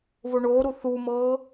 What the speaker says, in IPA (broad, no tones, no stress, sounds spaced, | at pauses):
β o ɳ oː ɾ u θ u m ɤː